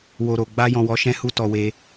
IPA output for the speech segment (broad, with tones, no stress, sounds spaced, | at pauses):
w o˧ ɾ o˨ ɡ͡b a˧ j ɔ̃˨ w ɔ˨˦ ʃ ɛ̃˦ h u˦ t ɔ˧ w e˧